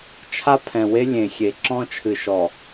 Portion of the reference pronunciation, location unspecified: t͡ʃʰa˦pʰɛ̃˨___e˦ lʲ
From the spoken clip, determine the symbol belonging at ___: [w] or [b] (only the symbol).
w